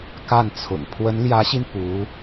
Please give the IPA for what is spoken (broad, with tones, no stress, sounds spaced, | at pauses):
k a˥˩ n t͡sʰ ʊ̰˨˩ ŋ pʰ w ə˧˥ n l j ä˧˥ ɕ i˧ n p u˧˥